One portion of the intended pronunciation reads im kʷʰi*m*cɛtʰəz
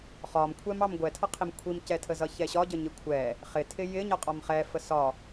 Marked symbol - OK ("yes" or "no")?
yes